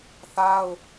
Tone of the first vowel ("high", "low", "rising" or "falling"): high